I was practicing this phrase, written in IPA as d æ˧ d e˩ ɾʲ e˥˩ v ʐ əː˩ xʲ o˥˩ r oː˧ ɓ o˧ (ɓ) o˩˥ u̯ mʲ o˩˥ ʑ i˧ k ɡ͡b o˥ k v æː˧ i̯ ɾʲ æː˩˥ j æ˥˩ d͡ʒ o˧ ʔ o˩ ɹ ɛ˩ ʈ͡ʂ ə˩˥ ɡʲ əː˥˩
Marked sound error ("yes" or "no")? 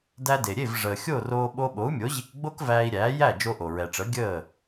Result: no